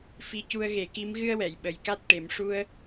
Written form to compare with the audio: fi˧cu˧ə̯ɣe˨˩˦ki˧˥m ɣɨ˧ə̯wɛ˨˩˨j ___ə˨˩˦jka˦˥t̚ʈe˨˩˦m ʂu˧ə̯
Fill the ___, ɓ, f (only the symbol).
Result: ɓ